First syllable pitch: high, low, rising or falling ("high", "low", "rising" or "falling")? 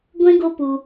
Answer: high